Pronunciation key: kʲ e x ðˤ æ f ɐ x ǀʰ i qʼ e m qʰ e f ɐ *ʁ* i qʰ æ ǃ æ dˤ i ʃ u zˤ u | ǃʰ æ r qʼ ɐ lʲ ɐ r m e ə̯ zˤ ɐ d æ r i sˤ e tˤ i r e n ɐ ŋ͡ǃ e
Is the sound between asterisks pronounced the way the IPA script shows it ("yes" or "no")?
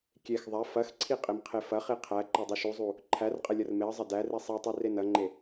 no